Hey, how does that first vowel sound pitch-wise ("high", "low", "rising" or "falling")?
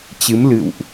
rising